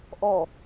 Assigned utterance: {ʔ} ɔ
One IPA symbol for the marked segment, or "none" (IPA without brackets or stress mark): ʔ